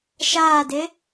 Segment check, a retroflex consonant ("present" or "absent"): absent